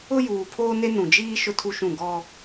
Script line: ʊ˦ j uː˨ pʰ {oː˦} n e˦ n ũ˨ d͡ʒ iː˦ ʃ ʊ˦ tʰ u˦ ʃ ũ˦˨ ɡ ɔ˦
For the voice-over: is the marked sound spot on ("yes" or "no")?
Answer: yes